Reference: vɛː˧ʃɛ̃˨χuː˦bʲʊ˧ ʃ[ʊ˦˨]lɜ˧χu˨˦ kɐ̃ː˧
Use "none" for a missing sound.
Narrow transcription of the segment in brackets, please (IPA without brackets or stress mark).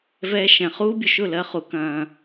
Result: ʊ˦˨